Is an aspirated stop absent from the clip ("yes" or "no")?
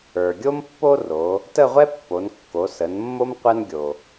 yes